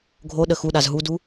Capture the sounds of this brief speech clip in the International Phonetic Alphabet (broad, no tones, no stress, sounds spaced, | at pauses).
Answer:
ɡʱ o ɗ ə x u ɗ a z ɦ u d u